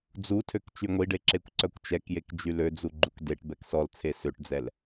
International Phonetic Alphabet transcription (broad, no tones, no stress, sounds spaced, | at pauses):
d͡z u tʰ ø k t͡ʃ y ŋʷ i ɖ e ǁ e kʷ ǀ œ kʷ t͡ʃ ɛ k j e k d͡ʒ y l ø d͡z u ɡ͡ǃ u k d e ʈ b ɛ k s ɔ l t͡sʰ e s ø ʈ d͡z ɛ l